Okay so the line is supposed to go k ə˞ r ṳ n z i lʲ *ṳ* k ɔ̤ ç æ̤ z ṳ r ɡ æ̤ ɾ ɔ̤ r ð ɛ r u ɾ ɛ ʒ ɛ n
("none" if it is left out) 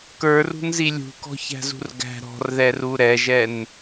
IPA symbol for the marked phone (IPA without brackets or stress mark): ṳ